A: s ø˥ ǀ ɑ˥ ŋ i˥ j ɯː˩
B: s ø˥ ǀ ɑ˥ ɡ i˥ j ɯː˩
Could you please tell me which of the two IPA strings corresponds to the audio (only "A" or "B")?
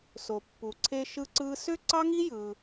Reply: A